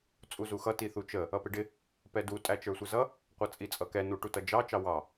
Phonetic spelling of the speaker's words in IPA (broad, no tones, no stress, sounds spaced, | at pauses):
t͡sʼ u z u x ʌ t i θ u t͡ʃ ə | ʌ p ɪ ɖ ɪ | p ɛ d u tʼ æ t͡ʃ ə˞ sʷ ɪ z ʌ | qʷ ʌ t͡sʼ i t͡sʼ ʌ k ɛ n u ʈ u t ʌ d͡ʒ ɑ t͡ʃ ɑ w ɑ